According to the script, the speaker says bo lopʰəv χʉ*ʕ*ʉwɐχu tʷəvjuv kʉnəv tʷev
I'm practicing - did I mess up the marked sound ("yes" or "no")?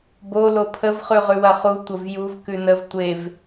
yes